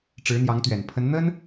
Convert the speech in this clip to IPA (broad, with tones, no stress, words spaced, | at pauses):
ʈ͡ʂɻ̩˧˥n̪jɑ˧˥ŋt̪ɥɛ˨˩n pʰə˧˥nn̪ə˥n